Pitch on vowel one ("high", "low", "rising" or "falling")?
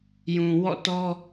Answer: low